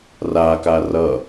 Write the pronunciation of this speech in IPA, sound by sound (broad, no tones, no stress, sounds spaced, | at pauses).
r a k a r ʌ